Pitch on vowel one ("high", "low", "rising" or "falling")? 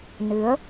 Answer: rising